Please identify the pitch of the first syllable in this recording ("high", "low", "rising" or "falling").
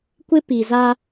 high